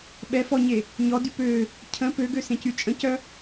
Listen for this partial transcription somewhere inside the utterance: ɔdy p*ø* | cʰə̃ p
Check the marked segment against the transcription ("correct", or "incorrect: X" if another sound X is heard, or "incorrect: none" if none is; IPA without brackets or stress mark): correct